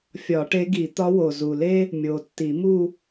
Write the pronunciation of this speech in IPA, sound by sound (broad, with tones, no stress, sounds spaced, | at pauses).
fʲ ɒ˨˩˦ ʈ e˧˥ ɡ i˨˩˦ t̪ ɒ˧˥ w o˨˩ z u˨˩ l e˥ | mʲ o˨˩ tː i˨˩˦ m u˥˧